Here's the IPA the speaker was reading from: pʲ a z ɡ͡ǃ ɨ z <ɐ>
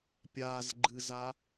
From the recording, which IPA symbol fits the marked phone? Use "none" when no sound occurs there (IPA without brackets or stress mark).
a